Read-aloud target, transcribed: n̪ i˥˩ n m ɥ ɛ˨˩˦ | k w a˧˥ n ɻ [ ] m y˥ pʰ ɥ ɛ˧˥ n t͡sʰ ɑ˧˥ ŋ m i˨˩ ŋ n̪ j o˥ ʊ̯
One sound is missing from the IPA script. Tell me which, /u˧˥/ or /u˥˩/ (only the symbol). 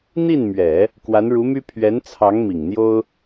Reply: u˧˥